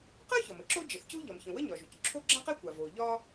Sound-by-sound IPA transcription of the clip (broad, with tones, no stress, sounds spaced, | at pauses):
q ɜ˥ ç ɒ˩ m ə˥ ǁ o˥ d͡ʒ ə˩ θ c u˥ ʎ ɒ˩ m ç ə̃˩ w ə˥ ɲ ɒ˩ ʒ u˩ c ǁʰ o˥ ɡ͡ǁ ã˥ q ɛ˥ kʷ a˩ v o˩ ʎ ɒ˥